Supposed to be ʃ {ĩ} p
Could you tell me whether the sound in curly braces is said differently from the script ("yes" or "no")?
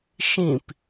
no